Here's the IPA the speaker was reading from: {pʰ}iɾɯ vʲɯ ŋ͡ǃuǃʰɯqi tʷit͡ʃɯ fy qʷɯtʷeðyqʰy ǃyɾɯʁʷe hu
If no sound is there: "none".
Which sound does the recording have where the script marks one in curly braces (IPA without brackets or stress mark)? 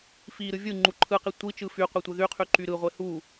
f